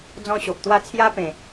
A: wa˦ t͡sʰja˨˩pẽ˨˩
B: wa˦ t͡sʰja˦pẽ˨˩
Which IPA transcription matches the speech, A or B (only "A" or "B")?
B